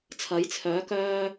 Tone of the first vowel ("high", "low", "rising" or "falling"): rising